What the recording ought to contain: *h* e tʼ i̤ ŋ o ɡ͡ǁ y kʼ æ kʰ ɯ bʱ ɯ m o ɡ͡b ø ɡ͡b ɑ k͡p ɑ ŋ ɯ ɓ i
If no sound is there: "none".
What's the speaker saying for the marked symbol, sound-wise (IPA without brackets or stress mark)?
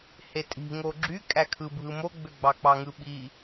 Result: h